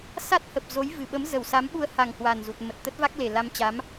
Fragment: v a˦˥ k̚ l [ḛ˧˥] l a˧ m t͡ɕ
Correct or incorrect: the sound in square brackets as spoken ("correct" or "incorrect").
incorrect